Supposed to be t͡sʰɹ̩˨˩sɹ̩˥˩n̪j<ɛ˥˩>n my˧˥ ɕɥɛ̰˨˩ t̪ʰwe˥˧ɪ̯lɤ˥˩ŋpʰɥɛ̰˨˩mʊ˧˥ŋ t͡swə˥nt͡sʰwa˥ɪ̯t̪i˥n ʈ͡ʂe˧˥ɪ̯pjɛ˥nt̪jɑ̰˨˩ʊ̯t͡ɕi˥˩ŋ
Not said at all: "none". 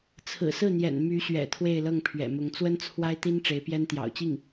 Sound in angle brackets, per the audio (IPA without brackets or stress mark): ɛ̰˨˩